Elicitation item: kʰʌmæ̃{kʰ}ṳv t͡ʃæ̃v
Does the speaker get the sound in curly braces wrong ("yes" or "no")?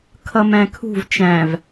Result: no